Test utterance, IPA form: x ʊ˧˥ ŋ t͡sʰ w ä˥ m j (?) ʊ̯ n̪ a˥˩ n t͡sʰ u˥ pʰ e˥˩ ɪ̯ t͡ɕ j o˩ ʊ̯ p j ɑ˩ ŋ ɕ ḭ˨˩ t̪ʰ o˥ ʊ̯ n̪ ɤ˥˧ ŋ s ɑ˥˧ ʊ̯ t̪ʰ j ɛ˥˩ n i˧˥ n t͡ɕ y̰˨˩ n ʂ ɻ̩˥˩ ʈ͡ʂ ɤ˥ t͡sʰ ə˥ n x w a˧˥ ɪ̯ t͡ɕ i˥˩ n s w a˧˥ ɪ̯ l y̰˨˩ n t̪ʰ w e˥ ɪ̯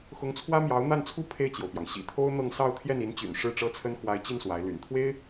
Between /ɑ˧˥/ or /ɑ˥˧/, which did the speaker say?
ɑ˧˥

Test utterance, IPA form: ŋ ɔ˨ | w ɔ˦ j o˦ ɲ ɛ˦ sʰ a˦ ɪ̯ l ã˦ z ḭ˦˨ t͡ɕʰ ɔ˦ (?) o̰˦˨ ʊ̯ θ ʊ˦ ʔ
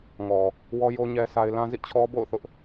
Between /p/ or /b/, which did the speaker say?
b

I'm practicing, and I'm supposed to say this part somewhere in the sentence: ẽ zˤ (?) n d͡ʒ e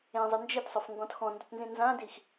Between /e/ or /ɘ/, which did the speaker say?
ɘ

